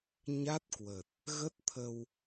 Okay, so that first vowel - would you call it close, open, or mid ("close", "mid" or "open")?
open